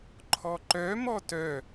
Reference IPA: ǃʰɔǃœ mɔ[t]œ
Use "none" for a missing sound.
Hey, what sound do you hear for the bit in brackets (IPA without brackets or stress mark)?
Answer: t